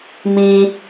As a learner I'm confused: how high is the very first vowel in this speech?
high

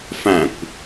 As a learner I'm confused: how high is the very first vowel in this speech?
low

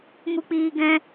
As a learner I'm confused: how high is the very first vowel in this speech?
high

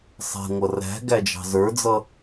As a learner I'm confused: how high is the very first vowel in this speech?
mid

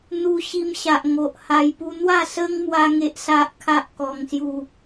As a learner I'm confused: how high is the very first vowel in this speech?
high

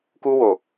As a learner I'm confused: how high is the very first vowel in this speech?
high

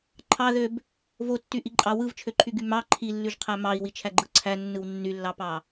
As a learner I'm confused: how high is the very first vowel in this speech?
low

